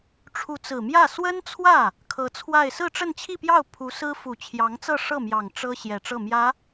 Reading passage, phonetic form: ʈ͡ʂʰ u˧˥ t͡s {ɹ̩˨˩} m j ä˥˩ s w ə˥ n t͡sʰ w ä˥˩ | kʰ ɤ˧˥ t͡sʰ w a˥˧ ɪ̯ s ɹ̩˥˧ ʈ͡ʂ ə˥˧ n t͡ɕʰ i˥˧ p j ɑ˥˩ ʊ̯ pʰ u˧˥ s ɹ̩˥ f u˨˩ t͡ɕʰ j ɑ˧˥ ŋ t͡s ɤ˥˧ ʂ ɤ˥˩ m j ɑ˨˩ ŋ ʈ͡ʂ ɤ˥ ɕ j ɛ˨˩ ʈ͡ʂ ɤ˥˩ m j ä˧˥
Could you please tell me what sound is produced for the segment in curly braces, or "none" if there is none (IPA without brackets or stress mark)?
ɹ̩˨˩